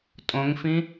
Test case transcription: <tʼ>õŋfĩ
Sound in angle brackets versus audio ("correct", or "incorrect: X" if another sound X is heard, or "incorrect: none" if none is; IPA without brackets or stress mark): correct